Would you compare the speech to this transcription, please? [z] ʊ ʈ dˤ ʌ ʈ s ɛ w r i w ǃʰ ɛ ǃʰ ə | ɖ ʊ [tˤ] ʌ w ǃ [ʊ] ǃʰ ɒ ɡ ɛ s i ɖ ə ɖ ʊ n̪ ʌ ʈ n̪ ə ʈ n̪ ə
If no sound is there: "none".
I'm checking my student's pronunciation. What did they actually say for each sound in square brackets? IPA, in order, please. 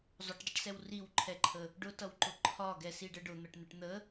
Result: zˤ, t, ʊ

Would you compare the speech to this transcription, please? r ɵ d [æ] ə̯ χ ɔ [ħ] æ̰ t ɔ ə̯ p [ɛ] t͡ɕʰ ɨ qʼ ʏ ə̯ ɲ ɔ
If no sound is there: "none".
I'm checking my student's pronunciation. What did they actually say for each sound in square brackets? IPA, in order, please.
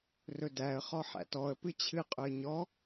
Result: æ, ħ, ɨ

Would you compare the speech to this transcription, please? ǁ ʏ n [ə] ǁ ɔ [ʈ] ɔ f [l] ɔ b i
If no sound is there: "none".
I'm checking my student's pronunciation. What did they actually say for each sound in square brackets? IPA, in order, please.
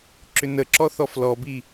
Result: ə, θ, l

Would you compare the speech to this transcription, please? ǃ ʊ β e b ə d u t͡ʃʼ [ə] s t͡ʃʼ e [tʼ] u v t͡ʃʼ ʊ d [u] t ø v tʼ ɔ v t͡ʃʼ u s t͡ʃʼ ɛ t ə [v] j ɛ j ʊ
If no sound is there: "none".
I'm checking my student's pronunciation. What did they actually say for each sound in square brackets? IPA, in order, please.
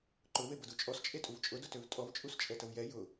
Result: ɔ, tʼ, ʊ, v

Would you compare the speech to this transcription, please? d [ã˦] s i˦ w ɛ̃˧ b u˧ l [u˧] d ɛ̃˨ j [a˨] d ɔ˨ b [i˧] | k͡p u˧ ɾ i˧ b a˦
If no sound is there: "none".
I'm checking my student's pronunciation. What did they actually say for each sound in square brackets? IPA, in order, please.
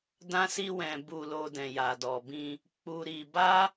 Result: ã˦, o˧, a˨, ĩ˧

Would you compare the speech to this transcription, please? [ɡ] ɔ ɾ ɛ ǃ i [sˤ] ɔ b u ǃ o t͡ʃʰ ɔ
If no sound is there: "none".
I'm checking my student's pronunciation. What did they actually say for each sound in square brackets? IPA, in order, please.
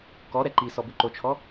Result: k, s

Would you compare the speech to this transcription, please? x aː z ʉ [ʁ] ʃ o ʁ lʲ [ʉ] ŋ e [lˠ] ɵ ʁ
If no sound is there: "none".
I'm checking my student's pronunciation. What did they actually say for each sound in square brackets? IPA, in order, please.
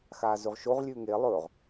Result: ʁ, ʉ, lˠ

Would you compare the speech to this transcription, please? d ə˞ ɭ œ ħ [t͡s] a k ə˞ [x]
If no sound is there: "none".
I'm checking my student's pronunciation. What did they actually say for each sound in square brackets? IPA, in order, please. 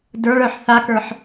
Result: θ, ħ

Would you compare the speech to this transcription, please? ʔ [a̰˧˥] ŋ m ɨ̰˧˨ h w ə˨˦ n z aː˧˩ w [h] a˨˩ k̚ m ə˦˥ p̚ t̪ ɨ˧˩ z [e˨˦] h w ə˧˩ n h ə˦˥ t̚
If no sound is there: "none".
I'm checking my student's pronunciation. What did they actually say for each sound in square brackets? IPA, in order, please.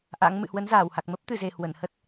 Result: a̰˧˥, h, e˨˩

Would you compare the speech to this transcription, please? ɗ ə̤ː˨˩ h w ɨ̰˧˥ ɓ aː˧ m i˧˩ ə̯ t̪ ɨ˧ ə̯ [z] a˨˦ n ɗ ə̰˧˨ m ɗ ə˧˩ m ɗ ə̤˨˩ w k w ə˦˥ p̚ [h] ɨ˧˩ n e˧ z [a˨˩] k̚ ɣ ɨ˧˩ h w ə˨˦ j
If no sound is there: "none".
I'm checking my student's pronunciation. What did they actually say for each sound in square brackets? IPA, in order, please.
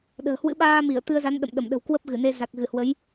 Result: z, ɣ, a˨˩

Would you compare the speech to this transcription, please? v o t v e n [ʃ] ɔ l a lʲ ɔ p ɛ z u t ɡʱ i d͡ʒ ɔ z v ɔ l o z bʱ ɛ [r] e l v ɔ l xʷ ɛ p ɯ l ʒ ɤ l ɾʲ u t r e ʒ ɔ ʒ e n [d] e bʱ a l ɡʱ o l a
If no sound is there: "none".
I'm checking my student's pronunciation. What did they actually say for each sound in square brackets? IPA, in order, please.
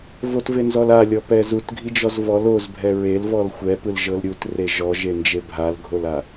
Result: z, ɹ, d͡ʒ

